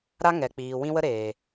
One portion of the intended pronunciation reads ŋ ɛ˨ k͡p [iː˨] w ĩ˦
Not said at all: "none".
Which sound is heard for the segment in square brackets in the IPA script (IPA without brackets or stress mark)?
iː˨